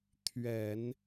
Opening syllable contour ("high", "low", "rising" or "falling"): low